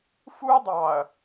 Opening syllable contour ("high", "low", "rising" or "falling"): high